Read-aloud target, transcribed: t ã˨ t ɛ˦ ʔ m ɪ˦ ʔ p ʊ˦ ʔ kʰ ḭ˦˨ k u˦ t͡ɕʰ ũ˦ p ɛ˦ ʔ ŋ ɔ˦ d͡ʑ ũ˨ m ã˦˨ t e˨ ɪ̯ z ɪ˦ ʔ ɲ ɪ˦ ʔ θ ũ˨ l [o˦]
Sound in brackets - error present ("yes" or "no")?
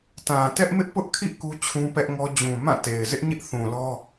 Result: yes